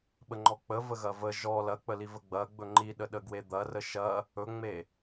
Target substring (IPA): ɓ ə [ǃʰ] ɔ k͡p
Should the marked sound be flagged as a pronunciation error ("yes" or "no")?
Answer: yes